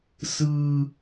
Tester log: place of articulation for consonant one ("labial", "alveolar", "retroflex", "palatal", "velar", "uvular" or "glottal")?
alveolar